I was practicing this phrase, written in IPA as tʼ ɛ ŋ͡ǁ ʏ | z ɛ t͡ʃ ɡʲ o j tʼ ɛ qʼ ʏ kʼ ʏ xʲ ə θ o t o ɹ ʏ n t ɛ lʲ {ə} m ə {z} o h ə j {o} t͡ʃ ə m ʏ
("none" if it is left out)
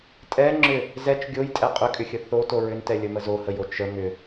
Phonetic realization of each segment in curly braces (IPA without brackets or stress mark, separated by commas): ə, z, o